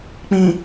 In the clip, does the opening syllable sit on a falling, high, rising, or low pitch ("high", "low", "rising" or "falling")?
low